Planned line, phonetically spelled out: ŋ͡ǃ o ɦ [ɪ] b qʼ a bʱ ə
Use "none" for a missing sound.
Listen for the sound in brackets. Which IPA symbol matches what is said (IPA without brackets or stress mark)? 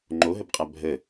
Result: ə